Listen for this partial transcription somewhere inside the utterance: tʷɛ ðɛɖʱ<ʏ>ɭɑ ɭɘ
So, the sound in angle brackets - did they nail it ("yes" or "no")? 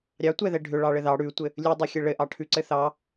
yes